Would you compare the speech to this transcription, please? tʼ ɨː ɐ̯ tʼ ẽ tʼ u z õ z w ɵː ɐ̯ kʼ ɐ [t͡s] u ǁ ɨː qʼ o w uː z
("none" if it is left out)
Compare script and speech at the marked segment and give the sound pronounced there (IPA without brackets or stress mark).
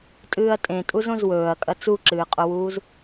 t͡s